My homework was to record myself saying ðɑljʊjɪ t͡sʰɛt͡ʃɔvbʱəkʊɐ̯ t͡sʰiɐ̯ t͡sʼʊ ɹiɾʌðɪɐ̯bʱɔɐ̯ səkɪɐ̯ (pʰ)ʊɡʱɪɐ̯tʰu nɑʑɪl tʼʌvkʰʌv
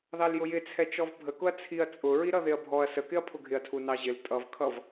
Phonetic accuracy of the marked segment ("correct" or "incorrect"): correct